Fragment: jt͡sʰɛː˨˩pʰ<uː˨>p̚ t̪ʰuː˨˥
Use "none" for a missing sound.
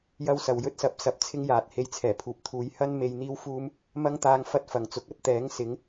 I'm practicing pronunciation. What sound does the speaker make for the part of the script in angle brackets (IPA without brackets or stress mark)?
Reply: uː˨